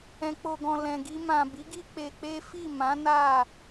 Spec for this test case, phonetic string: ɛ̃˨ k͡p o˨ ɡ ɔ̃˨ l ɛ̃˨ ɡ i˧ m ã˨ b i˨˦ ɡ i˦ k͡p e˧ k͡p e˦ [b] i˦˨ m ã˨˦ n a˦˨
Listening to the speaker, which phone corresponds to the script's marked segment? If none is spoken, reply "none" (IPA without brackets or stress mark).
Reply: f